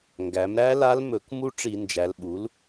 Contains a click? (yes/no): no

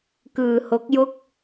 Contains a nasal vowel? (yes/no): no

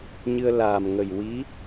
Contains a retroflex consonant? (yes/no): no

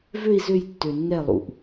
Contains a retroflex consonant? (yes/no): no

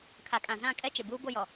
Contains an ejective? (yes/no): yes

